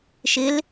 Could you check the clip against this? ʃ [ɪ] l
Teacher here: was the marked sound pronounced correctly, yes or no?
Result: yes